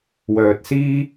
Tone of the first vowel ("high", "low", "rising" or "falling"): low